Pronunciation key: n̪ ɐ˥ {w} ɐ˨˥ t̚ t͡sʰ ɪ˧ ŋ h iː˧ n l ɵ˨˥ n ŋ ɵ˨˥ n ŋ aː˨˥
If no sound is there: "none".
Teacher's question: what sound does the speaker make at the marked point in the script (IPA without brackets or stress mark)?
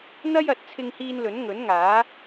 j